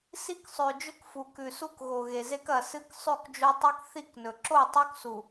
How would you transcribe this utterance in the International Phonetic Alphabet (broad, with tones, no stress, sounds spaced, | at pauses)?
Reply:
s i˦ k sˤ ʉ˨ d͡ʒ ɵ˦ k f u˨ k ʉ˨ s u˦ k ɣ o˨ ɣ e˨ z e˦ k ɐ˨ s ɨ˦ k sˤ ʉ˦˨ k d͡ʒ o˦ tˤ i˦ k θ i˦˨ k n ɵ˨ ǁ o˦˨ tˤ o˦ k s u˨